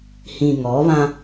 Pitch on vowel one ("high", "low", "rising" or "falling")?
low